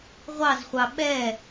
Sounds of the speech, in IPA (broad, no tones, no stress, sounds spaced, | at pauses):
ʁʷ ɑ z χʷ ɑ ɓ ɛ